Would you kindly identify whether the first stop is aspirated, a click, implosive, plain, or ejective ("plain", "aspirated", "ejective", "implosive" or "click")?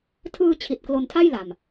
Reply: aspirated